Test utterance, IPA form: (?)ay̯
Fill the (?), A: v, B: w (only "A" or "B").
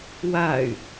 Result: B